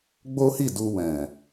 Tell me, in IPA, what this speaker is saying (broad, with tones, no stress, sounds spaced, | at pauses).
ɡ͡b o˦ h i˦˨ d u˧ w ɛ̃˨